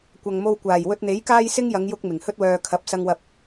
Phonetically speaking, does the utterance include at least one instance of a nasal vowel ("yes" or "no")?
no